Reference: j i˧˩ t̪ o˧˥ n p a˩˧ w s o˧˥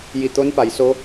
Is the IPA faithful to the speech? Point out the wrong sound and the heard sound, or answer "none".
w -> j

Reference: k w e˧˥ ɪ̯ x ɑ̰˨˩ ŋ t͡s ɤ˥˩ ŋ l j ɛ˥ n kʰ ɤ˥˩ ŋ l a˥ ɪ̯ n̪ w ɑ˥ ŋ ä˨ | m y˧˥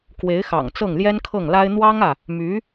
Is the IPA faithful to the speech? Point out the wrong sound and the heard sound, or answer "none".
none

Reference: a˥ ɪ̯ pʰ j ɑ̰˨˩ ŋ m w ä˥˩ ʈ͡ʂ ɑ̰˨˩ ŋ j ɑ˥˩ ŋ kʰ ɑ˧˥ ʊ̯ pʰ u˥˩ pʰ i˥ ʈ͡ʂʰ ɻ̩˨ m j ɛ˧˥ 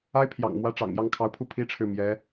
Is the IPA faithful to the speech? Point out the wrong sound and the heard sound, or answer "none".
none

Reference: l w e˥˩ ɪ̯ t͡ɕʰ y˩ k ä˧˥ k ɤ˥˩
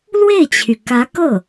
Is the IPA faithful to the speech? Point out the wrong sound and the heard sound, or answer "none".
none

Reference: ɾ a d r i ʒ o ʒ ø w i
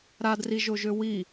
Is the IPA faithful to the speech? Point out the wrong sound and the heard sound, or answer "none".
none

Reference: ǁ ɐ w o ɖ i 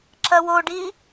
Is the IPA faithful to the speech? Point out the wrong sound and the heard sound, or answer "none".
none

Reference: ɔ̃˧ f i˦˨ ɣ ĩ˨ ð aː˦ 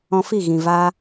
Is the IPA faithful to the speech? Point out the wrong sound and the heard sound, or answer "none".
ð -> v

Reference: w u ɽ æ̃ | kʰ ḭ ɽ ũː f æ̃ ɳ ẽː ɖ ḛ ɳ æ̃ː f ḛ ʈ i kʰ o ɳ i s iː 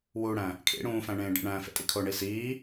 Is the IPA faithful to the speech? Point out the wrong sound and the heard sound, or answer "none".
ʈ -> tʼ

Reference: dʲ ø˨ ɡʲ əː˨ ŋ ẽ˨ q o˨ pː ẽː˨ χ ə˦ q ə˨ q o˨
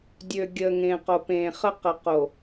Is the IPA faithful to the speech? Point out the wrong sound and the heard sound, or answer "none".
pː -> p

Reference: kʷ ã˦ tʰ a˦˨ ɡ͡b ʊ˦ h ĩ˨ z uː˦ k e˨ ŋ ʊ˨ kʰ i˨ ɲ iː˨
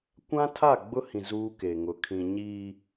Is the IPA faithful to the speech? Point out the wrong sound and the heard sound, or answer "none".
i˨ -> ĩ˨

